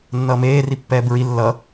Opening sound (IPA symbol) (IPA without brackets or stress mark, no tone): nː